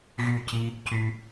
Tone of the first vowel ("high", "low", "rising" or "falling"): falling